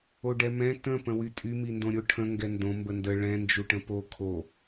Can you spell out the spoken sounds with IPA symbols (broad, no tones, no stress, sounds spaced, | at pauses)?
o ɖ ɛ m ɛ̃ t ə̃ p ə̃ w y tʼ y m i n d õ ɾʲ o ʈʰ ə̃ ŋ ɡ ɛ n d õ m b ə n d ə ɭ ɛ̃ n d͡ʒ u ʈ ə̃ p o kʰ o